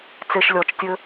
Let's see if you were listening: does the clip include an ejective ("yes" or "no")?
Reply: no